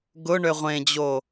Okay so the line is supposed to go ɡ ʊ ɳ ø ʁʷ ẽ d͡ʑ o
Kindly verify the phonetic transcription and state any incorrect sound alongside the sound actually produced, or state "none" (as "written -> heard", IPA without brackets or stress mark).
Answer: none